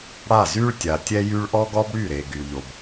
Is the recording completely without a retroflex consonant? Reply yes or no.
no